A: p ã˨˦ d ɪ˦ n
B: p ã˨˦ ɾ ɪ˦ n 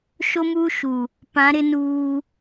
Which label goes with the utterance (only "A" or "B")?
B